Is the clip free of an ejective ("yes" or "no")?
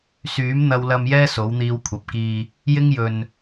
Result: yes